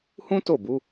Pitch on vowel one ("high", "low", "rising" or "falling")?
high